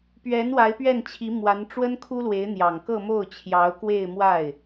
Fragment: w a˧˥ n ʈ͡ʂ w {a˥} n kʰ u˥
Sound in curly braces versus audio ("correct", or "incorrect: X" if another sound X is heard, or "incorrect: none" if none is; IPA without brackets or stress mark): incorrect: ə˥